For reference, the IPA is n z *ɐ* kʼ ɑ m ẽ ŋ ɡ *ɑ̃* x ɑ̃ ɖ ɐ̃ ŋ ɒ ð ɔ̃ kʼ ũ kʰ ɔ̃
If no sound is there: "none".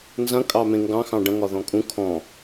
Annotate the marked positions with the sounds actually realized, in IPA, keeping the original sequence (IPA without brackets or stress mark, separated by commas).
ɐ̃, ɑ̃